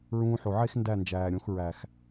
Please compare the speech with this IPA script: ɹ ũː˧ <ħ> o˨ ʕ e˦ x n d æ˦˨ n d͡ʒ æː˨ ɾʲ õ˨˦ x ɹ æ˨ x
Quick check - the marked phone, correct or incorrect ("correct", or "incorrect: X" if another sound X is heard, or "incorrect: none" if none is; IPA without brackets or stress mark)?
correct